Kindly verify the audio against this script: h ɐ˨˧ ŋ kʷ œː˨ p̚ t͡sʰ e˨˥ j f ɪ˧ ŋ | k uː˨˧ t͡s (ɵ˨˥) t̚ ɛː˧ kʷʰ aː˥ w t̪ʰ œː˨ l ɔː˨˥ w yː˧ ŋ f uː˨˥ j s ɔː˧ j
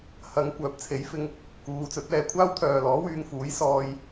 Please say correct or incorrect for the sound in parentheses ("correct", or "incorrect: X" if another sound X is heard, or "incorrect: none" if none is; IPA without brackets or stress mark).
correct